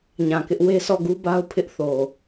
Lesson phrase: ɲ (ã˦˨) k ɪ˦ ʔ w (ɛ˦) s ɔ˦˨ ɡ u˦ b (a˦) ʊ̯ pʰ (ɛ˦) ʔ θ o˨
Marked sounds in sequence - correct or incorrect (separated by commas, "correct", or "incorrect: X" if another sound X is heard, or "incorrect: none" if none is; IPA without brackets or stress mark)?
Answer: incorrect: ã˨, incorrect: e˦, correct, incorrect: ɪ˦